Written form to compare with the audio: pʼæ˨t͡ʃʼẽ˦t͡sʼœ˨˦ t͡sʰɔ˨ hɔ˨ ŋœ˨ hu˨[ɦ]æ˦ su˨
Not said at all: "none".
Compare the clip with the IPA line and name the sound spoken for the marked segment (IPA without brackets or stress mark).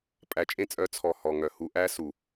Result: ʔ